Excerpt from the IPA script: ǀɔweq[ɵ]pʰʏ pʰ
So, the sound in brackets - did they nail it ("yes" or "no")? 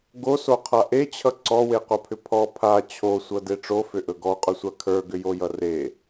no